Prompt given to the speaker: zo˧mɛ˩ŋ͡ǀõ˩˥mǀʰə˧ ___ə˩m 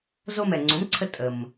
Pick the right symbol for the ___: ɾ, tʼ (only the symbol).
tʼ